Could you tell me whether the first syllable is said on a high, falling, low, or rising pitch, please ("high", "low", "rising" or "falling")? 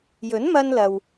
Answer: rising